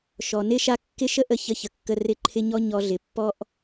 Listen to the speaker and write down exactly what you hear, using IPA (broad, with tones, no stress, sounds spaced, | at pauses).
ʃ ɔ˨ n ɪ˦˨ ʃ a˦ kː ɪ˦ ʃ ə˦ ʔ ə˦˨ ç ə˧ ç ə˨ kː ə˧ r ɪ˦˨ ǃʰ ɪ˦ ɲ ɔ˦ ɲ ɔ˧ ɮ ɪ˨ pː ɔ˦ ʔ